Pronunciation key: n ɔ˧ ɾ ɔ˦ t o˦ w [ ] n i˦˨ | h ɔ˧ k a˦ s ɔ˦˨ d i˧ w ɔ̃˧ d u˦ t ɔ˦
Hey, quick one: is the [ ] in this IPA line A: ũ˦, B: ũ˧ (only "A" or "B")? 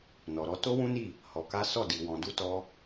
A